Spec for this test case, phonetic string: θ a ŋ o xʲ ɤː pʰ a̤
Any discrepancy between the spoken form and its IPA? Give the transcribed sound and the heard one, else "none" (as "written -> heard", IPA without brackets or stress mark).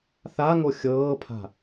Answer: none